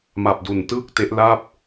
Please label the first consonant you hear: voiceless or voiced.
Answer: voiced